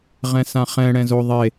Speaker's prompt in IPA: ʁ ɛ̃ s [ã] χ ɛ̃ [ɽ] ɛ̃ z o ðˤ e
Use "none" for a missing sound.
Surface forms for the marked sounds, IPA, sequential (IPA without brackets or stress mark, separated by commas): ã, ɽ